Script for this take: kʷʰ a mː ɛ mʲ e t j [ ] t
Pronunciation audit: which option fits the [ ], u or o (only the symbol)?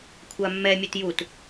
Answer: u